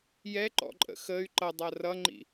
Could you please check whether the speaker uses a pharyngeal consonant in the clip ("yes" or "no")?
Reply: no